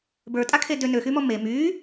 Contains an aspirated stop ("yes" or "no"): yes